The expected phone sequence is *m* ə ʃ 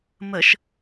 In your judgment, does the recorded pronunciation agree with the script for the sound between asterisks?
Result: yes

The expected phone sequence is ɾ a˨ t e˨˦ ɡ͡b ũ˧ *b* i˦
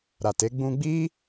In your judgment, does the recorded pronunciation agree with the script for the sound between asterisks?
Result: no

